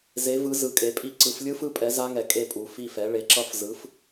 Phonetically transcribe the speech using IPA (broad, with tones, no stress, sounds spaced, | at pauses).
z e˩˥ v ɯ˩˥ z ɯ˨ kʼ e˩˥ pʼ i˦˥ ǀ ɯ˨˩˦ f lʲ ɯ˦˥ f ɯ˦˥ pʼ ɛ˩˥ z a˦˥ ŋ ɛ˨ kʼ e˦˨ pʼ u˨˩˦ f i˦˨ f ɛ˩˥ ɭ e˩˥ ǁ ʌ˦˥ f z ɯ˩˥ f